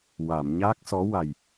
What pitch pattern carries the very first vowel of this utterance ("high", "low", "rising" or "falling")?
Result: low